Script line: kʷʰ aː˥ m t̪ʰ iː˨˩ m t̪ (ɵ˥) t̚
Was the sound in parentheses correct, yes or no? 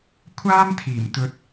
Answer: no